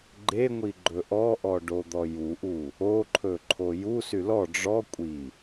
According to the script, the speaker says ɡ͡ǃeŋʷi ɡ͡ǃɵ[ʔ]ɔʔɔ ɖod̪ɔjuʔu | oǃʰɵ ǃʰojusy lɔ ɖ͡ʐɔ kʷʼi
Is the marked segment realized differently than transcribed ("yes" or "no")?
no